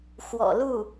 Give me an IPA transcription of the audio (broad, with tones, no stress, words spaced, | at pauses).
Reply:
xwɔ̰˨˩lu˥˩